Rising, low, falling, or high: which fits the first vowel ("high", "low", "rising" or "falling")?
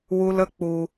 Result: high